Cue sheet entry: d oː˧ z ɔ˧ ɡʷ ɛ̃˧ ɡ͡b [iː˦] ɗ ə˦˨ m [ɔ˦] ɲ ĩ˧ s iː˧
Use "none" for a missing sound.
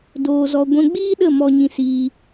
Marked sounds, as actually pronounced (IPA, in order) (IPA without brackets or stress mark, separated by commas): iː˦, ɔ˧